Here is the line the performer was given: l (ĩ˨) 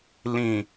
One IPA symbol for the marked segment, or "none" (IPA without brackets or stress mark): ĩ˨